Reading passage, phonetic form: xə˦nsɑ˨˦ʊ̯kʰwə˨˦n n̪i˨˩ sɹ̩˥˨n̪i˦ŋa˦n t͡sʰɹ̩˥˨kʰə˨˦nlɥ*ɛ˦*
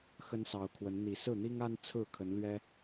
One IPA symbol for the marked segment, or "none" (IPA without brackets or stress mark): ɛ˦